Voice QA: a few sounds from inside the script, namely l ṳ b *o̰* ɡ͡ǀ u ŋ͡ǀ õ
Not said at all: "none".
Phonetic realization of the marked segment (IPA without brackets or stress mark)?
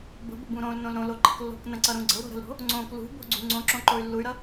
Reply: o̤